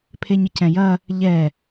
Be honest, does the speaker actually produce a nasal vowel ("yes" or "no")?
yes